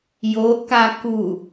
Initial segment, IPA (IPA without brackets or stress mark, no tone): j